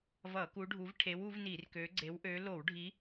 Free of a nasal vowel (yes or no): yes